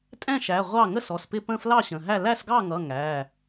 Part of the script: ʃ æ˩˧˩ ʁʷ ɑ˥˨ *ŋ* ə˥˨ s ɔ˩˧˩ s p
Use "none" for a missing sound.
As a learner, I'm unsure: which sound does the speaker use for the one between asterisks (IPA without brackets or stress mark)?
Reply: ŋ